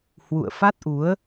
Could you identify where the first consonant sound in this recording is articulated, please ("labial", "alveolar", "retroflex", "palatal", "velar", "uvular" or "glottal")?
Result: glottal